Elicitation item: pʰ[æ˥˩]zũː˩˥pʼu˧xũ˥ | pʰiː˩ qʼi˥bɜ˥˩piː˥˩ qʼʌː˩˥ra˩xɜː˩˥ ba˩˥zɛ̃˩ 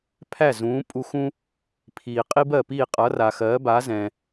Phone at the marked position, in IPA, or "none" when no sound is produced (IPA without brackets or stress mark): æ˥˩